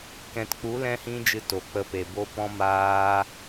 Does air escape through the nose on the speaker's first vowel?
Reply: yes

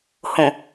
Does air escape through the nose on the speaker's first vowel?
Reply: yes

